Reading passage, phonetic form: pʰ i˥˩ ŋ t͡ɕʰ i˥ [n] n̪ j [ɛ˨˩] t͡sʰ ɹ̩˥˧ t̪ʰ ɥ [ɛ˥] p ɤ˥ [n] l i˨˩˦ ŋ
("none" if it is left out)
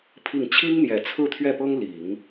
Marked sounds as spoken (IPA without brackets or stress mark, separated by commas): ŋ, ɛ˨˩, ɛ˥˩, ŋ